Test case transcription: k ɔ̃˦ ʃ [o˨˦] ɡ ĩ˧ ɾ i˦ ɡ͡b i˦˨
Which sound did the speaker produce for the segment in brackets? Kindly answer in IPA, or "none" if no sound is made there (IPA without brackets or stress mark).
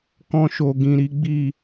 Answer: o˧